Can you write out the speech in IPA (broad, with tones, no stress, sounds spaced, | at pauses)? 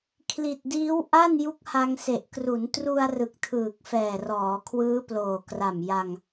kʰ l i˨˩ t̚ d iː˦˥ w ʔ a˥˩ n j u˦˥ k̚ h a˧ ŋ s e˨˩ ʔ k r u˩˦ n t r u˧ a̯ r ɯ˨˩ k̚ tʰ ɯː˨˩ k̚ f ɛː˨˩ r ɔː˩˦ kʰ w ɯː˦˥ p l oː˨˩ k r a˨˩ m j a˧ ŋ